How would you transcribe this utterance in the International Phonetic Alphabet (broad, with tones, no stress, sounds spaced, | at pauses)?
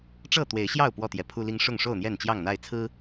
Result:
ʈ͡ʂ ɤ˥˨ t̪ w e˨˦ ɪ̯ ɕ j ɑ˥˨ ʊ̯ p w ɔ˥˨ t̪ j ɛ˨˦ pʰ u˦ l i˦ ŋ ʂ ʊ˥˨ ŋ ʂ o˥˨ ʊ̯ n̪ j ɛ˥˨ n t͡ɕ j ɑ˥˨ ŋ n̪ a˥˨ ɪ̯ t͡sʰ ɹ̩˦